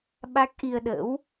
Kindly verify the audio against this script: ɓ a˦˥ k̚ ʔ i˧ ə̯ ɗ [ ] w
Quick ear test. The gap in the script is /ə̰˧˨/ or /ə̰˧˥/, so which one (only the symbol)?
ə̰˧˥